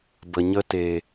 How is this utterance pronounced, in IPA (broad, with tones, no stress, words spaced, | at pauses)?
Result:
bə˨ɲə˧teː˨